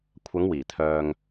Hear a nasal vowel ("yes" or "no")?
no